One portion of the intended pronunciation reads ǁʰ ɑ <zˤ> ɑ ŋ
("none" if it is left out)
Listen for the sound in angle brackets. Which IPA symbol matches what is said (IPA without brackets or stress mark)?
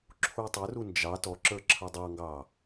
dˤ